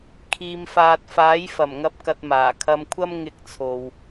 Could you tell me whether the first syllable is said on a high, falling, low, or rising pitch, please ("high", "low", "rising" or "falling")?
low